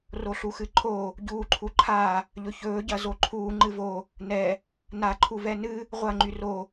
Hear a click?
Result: yes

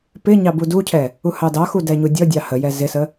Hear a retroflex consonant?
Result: no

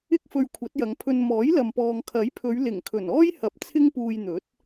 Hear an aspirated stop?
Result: yes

